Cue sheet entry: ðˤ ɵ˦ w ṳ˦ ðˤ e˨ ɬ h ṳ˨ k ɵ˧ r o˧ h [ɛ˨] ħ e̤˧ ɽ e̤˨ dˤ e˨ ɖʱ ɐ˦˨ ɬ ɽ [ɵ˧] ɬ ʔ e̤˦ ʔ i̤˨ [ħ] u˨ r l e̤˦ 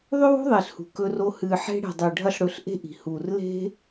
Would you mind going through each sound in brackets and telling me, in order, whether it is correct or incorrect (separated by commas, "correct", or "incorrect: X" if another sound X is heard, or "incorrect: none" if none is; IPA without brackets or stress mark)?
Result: incorrect: ɨ˨, correct, incorrect: h